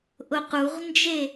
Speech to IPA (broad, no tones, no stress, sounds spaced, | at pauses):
ʔ ʊ q u ʁ n d͡ʒ e